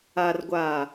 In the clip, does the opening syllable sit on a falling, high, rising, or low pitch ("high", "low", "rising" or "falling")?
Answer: low